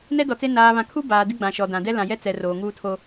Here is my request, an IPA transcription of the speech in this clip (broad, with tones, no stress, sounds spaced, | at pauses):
n ɛ˦ d ɔ˨ t͡s e˦ n aː˨ β ã˨ kʰ u˦ b aː˨ d ɪ˦ ɡ͡b ã˨ ʃ ɔ˨ d ã˨ d ɛ˦ l ã˨ j ɛ˦ t͡s ɛ˨ r oː˨ ŋ uː˦ tʰ o˦